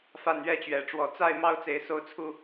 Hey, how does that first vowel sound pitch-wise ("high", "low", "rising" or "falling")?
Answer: falling